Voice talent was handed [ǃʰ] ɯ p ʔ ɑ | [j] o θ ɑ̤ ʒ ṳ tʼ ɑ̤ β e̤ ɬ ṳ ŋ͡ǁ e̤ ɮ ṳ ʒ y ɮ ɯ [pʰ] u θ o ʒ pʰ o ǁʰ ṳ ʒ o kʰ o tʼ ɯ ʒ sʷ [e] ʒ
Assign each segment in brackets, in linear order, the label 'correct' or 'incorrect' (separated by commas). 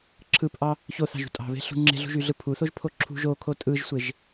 incorrect, incorrect, correct, correct